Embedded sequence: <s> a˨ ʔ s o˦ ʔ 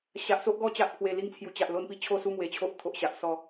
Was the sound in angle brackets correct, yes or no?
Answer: no